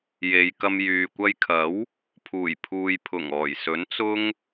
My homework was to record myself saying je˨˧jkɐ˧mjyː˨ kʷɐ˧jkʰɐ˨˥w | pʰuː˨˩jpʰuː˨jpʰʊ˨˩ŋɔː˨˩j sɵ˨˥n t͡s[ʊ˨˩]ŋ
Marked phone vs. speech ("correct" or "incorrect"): incorrect